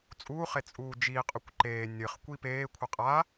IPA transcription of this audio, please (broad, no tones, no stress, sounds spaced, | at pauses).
t͡sʼ uː χ e t͡sʼ uː d͡ʒ iː qʼ ɵ kʷ ǃ eː nʲ ɨ χ kʷ i p eː kʷʰ ɨ qʼ a